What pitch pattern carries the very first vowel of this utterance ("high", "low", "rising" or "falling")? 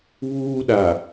high